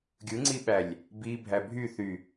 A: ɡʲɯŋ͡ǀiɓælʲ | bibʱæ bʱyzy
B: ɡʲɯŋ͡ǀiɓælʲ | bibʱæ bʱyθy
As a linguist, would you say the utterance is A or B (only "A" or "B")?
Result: B